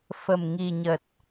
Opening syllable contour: low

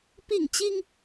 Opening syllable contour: falling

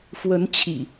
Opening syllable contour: rising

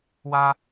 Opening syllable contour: high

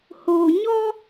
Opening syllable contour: low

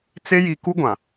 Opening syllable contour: high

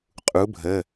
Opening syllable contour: rising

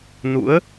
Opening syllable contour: rising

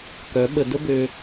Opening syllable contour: rising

